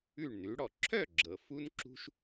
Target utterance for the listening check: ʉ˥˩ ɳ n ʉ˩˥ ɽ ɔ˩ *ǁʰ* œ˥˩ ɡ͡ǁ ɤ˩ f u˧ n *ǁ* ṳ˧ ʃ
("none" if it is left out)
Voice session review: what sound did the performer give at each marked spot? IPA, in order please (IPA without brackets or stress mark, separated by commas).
ǁʰ, ǁ